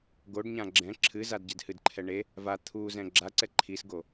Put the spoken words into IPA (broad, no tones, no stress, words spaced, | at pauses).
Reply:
ɡoɖɲã ɡ͡ǁɛ̃ ǁʰɨ zadɟɛdhɨdǃʰɛ ɳe | va t̪ʰuzɛ̃ ɡ͡ǁaǀɛ ǃʰisɡo